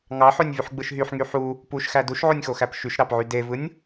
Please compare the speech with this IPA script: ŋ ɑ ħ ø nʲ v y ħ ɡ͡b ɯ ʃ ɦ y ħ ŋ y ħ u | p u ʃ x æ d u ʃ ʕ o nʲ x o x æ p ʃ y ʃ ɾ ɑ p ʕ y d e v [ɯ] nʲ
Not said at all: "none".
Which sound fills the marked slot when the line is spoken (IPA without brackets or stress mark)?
ɯ